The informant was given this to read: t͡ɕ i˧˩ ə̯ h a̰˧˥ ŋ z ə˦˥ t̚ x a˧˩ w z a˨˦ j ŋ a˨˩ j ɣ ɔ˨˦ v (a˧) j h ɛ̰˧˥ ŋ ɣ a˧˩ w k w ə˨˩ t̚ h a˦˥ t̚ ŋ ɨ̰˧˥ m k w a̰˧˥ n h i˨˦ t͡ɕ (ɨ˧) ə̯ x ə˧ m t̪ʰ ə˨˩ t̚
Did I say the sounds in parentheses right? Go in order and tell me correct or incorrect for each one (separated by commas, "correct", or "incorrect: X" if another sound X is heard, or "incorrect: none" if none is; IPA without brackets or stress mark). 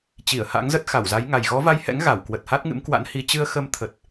correct, correct